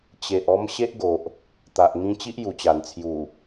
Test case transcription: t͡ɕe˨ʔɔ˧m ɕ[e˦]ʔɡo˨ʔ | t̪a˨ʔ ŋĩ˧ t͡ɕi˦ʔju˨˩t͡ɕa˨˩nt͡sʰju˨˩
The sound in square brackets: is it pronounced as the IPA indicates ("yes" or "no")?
yes